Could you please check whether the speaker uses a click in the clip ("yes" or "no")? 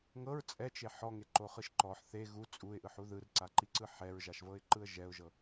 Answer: yes